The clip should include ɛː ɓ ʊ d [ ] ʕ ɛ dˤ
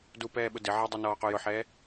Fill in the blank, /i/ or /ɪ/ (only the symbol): ɪ